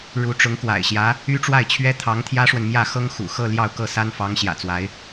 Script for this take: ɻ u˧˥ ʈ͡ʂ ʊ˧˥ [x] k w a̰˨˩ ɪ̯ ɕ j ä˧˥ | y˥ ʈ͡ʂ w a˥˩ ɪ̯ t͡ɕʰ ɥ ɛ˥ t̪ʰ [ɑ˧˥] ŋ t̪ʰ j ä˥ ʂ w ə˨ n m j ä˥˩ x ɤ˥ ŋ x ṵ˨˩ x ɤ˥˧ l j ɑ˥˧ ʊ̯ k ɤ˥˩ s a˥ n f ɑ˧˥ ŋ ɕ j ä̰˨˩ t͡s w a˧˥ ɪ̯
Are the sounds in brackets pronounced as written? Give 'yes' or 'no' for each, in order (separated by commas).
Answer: no, yes